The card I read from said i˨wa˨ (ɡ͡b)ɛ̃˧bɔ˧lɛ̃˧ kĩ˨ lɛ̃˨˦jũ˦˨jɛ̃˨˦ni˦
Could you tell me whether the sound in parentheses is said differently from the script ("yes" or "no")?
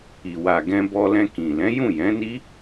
yes